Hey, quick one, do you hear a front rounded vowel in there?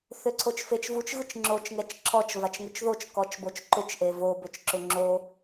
yes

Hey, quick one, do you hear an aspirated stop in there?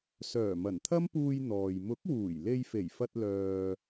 yes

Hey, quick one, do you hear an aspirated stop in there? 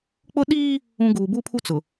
yes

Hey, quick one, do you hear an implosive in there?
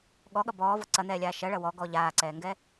yes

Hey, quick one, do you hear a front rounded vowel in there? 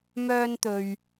yes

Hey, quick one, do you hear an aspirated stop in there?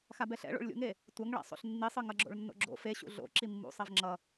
no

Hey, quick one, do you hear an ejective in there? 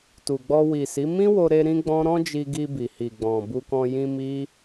no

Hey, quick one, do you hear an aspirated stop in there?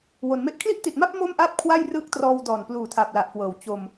yes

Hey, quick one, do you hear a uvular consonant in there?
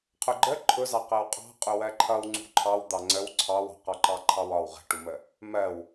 yes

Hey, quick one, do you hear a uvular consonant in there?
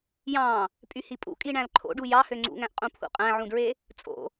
yes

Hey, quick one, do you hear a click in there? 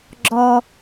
yes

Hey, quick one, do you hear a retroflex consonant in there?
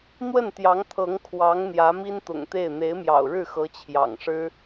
yes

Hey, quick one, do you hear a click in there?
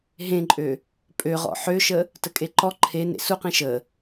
yes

